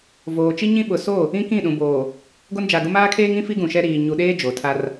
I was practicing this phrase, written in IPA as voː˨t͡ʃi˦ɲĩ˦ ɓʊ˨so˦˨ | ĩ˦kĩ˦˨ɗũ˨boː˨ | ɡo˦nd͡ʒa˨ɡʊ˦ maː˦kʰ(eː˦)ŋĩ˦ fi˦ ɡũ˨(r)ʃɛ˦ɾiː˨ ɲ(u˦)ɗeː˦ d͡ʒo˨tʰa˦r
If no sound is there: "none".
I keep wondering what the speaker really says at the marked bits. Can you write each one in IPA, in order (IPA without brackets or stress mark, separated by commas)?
eː˦, none, u˨